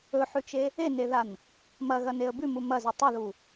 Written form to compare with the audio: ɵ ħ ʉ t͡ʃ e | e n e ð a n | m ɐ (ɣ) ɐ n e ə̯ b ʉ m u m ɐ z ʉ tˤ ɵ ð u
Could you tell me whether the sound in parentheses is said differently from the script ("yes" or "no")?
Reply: no